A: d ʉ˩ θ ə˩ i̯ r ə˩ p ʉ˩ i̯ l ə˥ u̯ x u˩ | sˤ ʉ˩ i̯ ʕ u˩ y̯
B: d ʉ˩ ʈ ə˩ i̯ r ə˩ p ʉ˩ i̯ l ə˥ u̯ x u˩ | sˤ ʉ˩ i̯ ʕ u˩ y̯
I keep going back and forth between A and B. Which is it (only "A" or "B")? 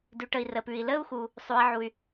B